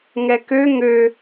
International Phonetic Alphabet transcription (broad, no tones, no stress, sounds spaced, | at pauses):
ŋ ɛ k ø ŋ ø